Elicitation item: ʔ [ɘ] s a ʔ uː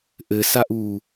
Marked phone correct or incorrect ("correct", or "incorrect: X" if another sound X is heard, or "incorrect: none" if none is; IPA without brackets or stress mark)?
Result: correct